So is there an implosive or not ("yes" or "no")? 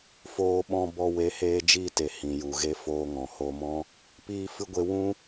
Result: yes